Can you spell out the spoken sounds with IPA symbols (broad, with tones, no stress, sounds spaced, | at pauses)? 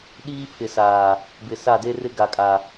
ɗ iː˦ pʰ ɪ˨ s aː˨ | b ɪ˨ s a˦˨ d e˦ r ɪ˦ ɡ a˨ kʼ a˨